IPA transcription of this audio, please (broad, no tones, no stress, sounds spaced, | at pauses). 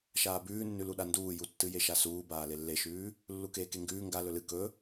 ʃ aː b ʉː nː ʉ l u ɗ a n d uː j u tː ɨ j e ʃ a s uː b aː l e lː e ʃ ʉː | lː u k eː k e ŋ ɡ ʉː ŋ ɡ a l ɵ l ɨ k ɵ